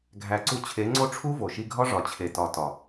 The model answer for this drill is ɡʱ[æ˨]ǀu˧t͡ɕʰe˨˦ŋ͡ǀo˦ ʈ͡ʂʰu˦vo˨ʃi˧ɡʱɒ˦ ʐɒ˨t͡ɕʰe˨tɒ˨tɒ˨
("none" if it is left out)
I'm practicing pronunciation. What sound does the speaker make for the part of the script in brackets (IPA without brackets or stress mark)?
æ˨